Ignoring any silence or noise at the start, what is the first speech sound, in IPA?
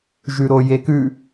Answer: ʒ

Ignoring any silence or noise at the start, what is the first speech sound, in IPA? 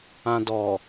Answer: ã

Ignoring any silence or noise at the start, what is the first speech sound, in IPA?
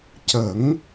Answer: c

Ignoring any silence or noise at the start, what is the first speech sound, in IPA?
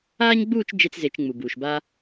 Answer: aː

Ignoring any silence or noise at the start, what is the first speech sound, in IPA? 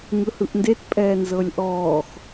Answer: ŋ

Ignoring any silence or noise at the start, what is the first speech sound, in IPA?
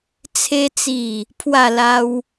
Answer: t͡sʰ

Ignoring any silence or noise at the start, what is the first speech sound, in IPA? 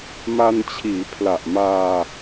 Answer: m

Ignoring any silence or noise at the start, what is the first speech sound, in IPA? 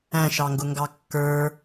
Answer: æ̃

